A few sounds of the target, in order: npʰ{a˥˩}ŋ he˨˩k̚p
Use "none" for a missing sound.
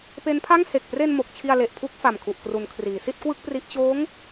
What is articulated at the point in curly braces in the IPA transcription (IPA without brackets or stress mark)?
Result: a˥˩